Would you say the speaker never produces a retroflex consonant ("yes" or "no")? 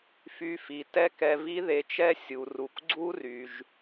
yes